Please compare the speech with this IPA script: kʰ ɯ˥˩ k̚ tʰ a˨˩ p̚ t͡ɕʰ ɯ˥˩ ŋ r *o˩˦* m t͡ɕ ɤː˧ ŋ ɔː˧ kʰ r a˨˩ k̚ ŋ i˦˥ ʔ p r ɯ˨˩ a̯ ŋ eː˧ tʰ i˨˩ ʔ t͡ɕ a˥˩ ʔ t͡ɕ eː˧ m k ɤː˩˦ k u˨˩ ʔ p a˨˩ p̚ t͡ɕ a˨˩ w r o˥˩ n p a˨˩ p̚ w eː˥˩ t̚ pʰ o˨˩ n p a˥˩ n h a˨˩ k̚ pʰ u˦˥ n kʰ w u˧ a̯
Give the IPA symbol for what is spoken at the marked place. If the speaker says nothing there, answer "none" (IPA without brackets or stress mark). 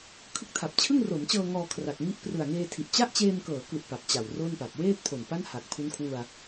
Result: o˩˦